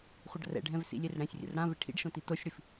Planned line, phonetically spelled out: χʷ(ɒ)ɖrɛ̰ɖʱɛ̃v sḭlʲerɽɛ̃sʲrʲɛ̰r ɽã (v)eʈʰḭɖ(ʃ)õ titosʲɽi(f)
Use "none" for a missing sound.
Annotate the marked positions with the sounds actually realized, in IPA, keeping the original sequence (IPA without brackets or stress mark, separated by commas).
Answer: ʌ, v, ʃ, f